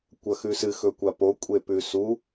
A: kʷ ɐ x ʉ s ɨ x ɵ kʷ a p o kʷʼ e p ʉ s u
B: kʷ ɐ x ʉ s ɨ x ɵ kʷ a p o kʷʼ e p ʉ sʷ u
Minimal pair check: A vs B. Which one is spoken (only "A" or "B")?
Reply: A